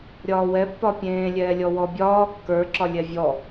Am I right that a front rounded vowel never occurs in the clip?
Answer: yes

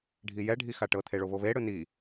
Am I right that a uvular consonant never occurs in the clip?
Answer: yes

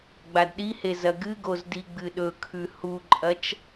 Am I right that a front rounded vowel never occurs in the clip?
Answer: yes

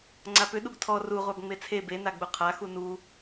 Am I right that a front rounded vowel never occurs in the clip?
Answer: no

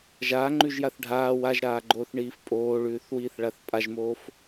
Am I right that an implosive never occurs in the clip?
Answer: yes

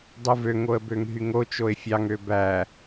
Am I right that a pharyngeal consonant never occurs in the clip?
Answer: yes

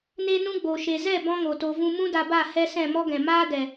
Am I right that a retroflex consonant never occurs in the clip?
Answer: yes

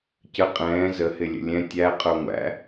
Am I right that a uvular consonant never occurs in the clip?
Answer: no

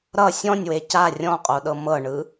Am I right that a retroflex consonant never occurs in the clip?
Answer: no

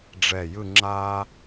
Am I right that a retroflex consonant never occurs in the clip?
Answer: no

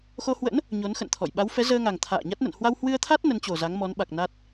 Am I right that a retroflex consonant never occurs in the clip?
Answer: yes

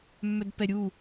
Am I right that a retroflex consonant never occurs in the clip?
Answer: yes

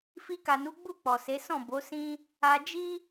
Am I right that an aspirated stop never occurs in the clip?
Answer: yes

